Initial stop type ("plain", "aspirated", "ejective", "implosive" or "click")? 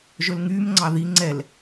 click